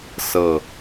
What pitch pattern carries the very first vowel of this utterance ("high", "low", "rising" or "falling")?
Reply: low